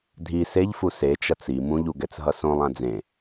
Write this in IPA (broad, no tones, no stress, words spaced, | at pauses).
dʱi seʎfu set͡ʃʌt͡s i mũʎu ɡɛt͡sɦʌsõlˠã d͡zẽ